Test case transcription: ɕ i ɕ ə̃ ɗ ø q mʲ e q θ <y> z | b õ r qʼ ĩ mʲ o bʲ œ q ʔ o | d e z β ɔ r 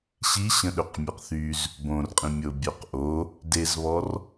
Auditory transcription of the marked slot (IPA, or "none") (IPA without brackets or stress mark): y